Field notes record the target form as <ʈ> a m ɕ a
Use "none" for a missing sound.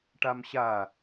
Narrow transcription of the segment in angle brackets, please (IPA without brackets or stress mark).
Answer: ʈ